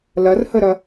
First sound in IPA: l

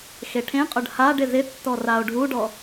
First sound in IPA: x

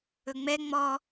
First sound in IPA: ɵ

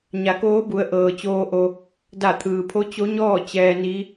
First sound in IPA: ɲ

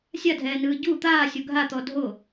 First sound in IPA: sʲ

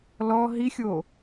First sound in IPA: l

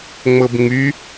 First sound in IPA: ŋ͡m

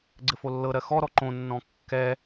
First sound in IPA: ɡ͡ǀ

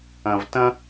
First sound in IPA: ɐ̃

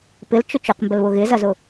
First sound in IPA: p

